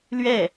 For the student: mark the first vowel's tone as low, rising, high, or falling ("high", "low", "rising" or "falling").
falling